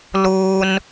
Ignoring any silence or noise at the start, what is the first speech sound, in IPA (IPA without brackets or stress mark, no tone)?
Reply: l